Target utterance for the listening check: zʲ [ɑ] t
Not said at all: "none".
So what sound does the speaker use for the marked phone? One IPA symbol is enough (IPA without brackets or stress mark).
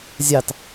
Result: ɑ